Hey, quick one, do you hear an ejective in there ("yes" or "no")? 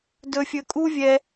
yes